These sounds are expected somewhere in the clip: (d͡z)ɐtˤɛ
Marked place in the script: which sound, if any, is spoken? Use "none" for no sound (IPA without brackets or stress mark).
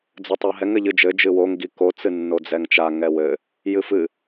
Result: d͡z